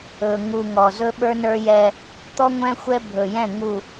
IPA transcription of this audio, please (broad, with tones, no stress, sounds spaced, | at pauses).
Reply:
ɵ˨ ŋ u˨ ŋ ɔ˨ z ɵ˦ ɓ ə˞˦ n ə˞˦ j ɛ˦ | t̪ ɔ˦ ŋʷ ɛ̃˦ xʷ ɛ˦ bʱ ɵ˨ j ɛ̃˦˨ ŋ u˨